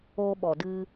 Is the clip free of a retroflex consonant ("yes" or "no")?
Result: yes